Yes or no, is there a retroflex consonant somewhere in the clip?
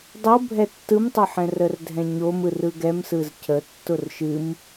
no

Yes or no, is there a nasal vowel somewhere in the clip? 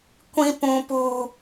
yes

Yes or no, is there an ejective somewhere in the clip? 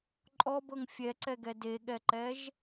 yes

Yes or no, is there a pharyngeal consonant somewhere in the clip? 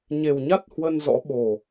no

